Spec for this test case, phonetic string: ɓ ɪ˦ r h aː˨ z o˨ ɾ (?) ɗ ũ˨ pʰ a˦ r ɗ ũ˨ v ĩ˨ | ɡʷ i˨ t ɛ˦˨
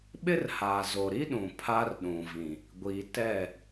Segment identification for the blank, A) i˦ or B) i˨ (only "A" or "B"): A